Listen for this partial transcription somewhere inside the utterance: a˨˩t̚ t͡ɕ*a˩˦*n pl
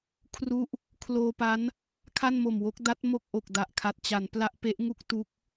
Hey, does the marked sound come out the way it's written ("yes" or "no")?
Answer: yes